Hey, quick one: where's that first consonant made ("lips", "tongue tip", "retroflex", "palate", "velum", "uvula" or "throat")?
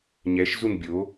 palate